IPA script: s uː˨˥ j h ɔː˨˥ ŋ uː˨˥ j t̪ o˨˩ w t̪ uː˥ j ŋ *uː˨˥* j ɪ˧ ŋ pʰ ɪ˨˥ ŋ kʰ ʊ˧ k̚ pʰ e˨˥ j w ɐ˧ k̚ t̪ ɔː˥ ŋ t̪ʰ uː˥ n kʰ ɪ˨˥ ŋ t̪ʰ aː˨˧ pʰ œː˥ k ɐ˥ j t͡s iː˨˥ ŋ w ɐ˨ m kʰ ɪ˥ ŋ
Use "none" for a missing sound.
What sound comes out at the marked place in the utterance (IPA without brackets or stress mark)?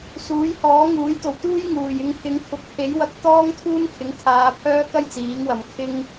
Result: uː˨˩